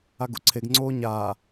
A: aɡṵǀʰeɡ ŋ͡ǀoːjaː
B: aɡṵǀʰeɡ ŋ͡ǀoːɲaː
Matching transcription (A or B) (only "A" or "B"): B